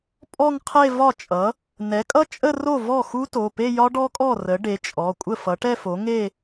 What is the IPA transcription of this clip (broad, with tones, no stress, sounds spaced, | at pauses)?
pʼ ɔ˥˧ ŋ qʰ e˥˧ v ɒ˥˩ t͡ʃʼ ʌ˩˥ | n ɛ˩˥ kʼ ʌ˦˥ t͡ʃʼ ə˥˧ r o˥˩ v ɔ˥˩ x u˦˥ t o˩˧˩ p e˥˧ j ɒ˦˥ ɖ ɔ˦˥ kʼ ɔ˥˩ r ə˩˥ ɖ e˩˥ t͡ʃʼ ɔ˩˧˩ kʷʼ ə˥˩ f ʌ˩˥ ʈ ɛ˥˧ f o˩˥ ŋ e˥˧